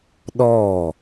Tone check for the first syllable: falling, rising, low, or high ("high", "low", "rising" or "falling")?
falling